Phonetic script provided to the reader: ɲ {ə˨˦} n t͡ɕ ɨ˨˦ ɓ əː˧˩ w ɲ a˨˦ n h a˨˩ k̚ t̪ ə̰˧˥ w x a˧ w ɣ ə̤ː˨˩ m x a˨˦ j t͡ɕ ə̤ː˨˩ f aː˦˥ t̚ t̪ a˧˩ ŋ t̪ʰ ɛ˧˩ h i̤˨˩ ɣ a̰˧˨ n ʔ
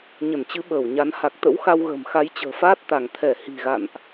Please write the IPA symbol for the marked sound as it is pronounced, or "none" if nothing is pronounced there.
ə˧˩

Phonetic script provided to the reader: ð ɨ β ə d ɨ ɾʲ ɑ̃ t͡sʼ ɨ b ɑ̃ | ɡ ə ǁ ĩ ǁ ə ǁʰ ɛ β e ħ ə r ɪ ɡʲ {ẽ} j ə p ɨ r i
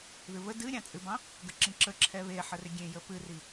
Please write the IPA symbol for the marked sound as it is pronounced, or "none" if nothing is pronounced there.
ẽ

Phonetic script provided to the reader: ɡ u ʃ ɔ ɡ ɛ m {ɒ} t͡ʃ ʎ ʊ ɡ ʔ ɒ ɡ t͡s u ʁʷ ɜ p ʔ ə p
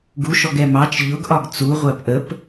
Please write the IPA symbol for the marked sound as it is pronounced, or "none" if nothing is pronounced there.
ɑ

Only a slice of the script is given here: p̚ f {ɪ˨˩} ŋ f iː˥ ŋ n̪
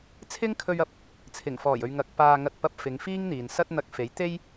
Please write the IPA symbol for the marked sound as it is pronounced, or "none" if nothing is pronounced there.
ɪ˨˧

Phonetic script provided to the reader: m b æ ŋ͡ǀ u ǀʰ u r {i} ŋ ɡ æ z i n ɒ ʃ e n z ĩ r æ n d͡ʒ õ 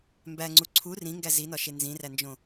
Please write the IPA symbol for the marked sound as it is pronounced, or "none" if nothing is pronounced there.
ĩ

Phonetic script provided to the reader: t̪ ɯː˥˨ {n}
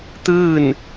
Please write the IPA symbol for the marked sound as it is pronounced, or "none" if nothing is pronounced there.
n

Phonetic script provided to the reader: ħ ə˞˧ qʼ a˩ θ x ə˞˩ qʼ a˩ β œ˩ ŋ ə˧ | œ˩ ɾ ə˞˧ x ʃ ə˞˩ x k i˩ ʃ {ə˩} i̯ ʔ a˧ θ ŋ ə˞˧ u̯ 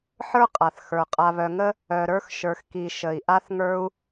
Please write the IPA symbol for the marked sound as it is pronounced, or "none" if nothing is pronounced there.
ə˩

